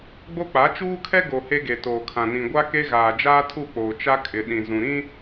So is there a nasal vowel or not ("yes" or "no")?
yes